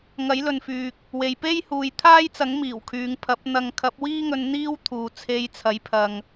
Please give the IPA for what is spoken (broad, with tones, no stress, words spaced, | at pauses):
ŋɐ˨˥jlɵ˨nfyː˨k̚ | we˨jpe˥j huː˨jt̪ʰaː˥jt͡sɐ˨˥ŋmiː˨˩w kʰyː˨ŋpʰɐ˨˥p̚ n̪ɐ˨˧ŋkʰɐ˨˥p̚wiː˥ŋɵ˧n n̪iː˥wt̪ʰuː˨ t͡sʰe˧jt͡sʰɐ˨˥jpʰɐ˨ŋ